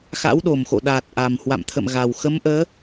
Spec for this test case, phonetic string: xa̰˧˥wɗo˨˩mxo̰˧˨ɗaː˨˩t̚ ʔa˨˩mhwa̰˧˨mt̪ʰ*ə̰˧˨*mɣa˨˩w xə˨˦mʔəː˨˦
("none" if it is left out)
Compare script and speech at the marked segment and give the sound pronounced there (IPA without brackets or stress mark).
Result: ə̰˧˨